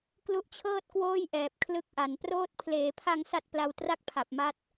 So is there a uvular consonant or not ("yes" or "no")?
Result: no